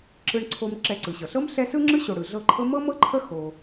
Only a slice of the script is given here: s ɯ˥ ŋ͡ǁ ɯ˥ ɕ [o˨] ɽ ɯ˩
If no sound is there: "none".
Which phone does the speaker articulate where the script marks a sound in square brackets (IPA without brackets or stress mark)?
o˨